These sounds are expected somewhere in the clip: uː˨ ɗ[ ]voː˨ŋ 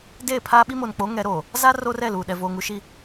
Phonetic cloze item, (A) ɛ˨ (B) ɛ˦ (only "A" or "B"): A